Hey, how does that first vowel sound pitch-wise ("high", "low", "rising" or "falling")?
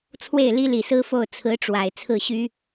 falling